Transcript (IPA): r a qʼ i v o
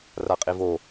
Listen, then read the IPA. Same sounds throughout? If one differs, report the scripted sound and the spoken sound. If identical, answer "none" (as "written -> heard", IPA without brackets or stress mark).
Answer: none